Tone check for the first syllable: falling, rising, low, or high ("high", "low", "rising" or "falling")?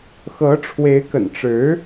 rising